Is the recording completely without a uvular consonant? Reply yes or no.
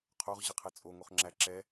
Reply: no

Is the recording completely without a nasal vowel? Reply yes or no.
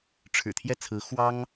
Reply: yes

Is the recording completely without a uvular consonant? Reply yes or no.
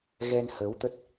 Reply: yes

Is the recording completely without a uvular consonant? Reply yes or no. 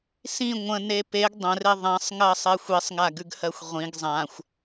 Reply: no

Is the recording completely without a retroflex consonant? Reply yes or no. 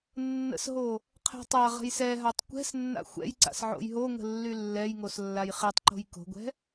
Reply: yes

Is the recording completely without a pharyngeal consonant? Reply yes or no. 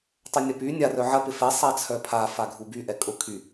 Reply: no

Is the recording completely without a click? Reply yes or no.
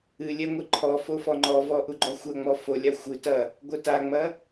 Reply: no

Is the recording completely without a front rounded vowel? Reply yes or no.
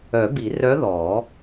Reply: no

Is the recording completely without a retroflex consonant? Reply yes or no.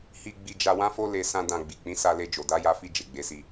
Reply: yes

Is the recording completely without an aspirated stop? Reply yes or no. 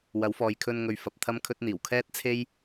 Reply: no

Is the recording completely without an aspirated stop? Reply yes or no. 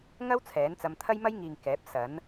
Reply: no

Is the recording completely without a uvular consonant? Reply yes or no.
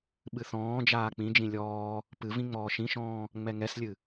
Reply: yes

